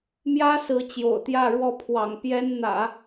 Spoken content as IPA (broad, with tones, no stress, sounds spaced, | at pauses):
m j ä˥ s ɹ̩˧˥ t͡ɕ j o̰˨˩ ʊ̯ t̪ j ä˥˧ ɻ w ɔ˥˩ pʰ w ɑ̰˨˩ ŋ p j ɛ˥ n n̪ ä̰˨˩˦